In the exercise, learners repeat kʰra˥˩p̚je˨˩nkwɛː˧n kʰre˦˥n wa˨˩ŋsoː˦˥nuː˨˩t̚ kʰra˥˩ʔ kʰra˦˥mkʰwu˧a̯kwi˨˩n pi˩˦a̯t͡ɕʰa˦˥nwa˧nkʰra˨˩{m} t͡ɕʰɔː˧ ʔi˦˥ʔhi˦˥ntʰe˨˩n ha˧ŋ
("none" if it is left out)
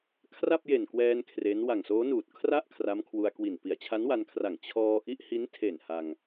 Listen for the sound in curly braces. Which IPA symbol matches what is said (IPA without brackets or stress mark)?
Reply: ŋ